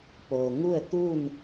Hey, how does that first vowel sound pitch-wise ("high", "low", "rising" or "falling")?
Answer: low